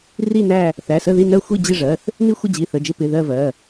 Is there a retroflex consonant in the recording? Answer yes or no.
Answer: yes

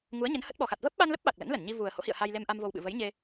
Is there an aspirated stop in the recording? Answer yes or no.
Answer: no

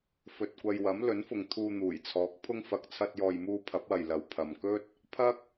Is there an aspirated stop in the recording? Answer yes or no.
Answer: yes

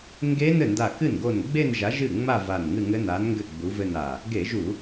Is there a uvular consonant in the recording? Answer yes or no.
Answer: no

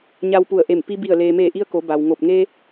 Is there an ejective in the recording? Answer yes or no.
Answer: no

